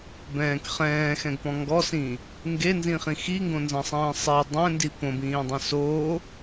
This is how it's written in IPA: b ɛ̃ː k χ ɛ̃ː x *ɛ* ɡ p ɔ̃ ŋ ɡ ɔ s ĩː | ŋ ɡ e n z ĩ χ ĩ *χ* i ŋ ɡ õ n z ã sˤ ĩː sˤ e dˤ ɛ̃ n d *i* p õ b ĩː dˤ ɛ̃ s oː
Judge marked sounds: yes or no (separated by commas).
no, no, yes